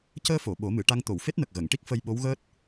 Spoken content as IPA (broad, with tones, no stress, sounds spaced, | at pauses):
c əː˧ f o˨˩˨ ɓ o˨˩˦ m ɨ˨˩˨ ʈ a˧ ŋ t̪ o˨˩˨ w f e˦˥ t̚ n ə˨˩ k̚ ɣ ə˨˩˨ ŋ ʈ i˦˥ k̚ f ə˧ j ɓ o˧˥ w ɣ əː˦˥ t̚